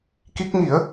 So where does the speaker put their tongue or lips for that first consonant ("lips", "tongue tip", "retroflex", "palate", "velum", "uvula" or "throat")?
velum